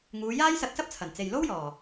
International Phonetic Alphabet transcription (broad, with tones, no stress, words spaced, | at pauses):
ŋuː˨˧jaː˥jsɐ˧t̚sɐ˥p̚ t͡sʰɐ˨˩nt͡se˨jlo˥wjɔː˨˩